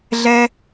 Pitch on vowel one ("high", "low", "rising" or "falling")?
high